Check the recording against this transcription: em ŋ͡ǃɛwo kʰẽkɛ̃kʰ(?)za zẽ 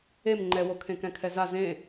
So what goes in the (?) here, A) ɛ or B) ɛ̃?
A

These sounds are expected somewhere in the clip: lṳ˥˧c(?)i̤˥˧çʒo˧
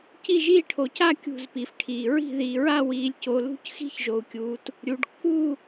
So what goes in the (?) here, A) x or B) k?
A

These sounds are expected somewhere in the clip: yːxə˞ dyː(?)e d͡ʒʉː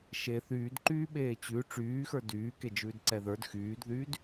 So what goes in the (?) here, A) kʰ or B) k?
B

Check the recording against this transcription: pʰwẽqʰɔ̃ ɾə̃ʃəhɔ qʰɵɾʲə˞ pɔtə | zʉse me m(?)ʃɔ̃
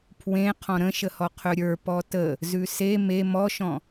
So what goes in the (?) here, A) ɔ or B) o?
A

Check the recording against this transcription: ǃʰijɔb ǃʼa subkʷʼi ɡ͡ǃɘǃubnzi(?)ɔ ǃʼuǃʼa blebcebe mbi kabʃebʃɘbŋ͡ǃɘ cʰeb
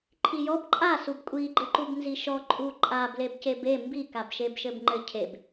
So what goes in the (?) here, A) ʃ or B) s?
A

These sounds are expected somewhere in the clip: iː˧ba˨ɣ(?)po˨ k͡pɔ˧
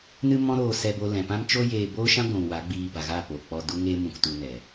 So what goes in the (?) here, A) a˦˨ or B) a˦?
A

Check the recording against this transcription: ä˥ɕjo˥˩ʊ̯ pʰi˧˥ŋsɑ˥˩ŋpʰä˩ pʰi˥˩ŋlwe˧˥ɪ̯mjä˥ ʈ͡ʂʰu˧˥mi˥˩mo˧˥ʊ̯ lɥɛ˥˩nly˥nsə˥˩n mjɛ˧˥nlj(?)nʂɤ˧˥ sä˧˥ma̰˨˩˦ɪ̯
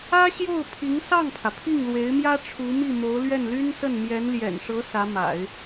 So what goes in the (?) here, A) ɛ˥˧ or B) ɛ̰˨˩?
B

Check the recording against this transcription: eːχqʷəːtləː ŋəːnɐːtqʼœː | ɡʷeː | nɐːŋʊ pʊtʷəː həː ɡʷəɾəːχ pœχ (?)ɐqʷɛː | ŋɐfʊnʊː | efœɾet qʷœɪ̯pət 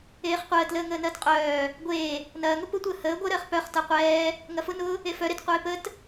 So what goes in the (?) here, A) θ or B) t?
B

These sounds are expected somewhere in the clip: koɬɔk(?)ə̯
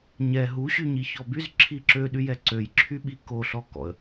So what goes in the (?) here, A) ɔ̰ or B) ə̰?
A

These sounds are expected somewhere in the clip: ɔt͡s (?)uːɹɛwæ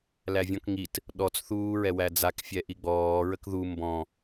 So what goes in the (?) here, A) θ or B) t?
A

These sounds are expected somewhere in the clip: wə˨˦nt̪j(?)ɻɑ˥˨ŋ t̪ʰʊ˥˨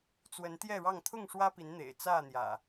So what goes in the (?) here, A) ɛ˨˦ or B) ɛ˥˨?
B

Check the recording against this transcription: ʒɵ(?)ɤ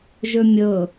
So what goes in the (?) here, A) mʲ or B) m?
A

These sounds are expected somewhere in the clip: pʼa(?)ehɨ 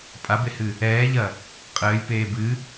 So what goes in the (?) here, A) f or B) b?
B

